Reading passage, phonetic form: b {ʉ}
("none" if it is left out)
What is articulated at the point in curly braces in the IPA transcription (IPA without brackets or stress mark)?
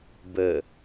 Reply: ə